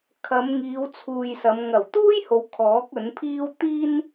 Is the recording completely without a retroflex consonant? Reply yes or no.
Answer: yes